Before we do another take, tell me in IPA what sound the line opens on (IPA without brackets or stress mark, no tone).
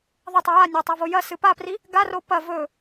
ðˤ